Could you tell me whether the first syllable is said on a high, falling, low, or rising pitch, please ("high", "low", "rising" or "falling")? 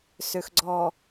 low